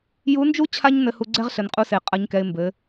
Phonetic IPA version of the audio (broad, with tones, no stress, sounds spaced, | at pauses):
j u˧˥ n d͡ʒ u˥ t͡ɕʰ a˥ ɲ n ɘ˧ h u˧ ɡ͡ǀ ɛ˥ ʁ ɬ ɘ˩˧ n qʼ u˧ s e˩ qʼ ɐ˧˥ ɲ k ɛ˧ ɪ̯ m b ɘ˩˧